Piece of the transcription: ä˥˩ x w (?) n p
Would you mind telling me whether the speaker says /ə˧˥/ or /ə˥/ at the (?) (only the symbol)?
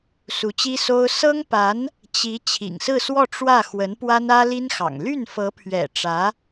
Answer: ə˧˥